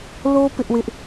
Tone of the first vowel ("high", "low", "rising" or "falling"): high